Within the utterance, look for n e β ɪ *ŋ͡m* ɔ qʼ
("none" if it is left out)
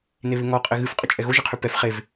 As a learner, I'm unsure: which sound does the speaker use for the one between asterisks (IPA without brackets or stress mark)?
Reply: ŋ